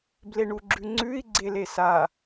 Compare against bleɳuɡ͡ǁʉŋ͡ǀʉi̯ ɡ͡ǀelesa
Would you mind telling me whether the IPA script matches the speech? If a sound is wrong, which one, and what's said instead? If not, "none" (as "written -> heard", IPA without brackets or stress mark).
none